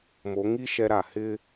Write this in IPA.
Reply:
m o˨˦ ŋ i˦ ʃ ɛ˦ ɾ a˨ h ɪ˦

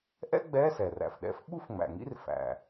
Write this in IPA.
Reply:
ʔ ɛ̰˥ ɡ͡b ɛ˧˥˧ s ɛ˩ r æ̰˩ f ɗ ɛ̰˧˥ f ɓ u˥ f ŋ͡m æ̰˩ ŋ ḭ˥ r f æ̰˩

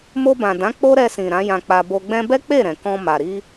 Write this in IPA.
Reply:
m o˧ b ã˨ d ã˨˦ k͡p o˦ ɾ ɛ˧ s ĩ˨ ɾ ã˨˦ j ã˧ k͡p a˧ b o˧ ɡ͡b ɛ̃˦ b ɛ˦ k͡p e˦˨ ɾ ɛ̃˨ k ɔ̃˧ m a˨ ɾ i˧

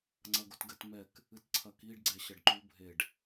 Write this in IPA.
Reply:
ŋ͡ǀ ɐ ɡ o t ɡ ɘ t m ɛ k | ɨ t ǀʰ ɐ k i ɖ ɡ͡ǀ ɛ ɕ ɐ ɖ ǃ u bʱ e ɖ

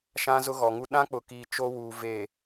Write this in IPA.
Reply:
ʃ ã˦ z ʊ˦ ɣ ɔ˨ ŋ u˦ ɗ ã˦ k͡p ʊ˨ k iː˨ t͡ʃ o˦ w uː˨ v e˨

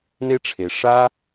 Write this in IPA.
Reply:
n e˦ ʈ͡ʂʰ e˨ ʂ a˦

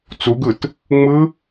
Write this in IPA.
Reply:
t͡s u ɡ ɯ t | ŋ͡m ɯ

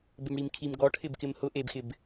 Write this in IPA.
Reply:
b e m ɽ i m kʰ i m ɡ ɔ ʈʰ ɪ b k ɪ m h ʊ ʔ e b x ɪ b

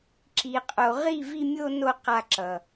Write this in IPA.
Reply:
ǁ i˨ qʼ o˨ ʁ i˦˨ v i˧ mʲ o˧ n o˧ q a˧ ǁ ʌ˨

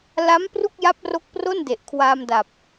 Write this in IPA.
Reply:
l a˦˥ m p r u˥˩ k̚ j a˦˥ p̚ r o˦˥ k̚ p r o˥˩ n d e˨˩ ʔ kʰ w aː˧ m d a˨˩ p̚

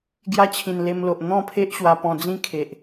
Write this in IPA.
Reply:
ɡ j a˧ t͡ɕʰ ĩ˨˩ n l e˧ m l o˨ ʔ n̪ ɔ̃˥˧ pʰ e˦ ʔ ɕ w a˧ p ɔ̃˧ d͡z ĩ˦ kʰ e˨ ʔ

